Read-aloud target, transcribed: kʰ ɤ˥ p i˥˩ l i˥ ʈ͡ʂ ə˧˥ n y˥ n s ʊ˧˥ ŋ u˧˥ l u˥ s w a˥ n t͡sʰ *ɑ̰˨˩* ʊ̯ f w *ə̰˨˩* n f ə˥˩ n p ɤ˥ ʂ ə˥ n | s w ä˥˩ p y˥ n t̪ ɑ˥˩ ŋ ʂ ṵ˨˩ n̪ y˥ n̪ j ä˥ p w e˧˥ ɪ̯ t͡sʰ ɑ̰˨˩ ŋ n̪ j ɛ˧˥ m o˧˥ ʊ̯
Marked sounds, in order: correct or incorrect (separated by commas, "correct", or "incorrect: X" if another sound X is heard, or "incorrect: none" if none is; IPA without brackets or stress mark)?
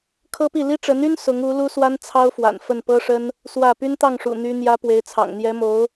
incorrect: ɑ˥, incorrect: a̰˨˩